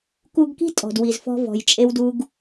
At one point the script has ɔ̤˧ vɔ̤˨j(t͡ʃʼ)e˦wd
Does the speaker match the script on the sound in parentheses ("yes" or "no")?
yes